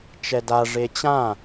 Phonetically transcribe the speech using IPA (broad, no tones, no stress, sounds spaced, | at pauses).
t͡ʃ ɛ d a ʐ e t͡ɕ ã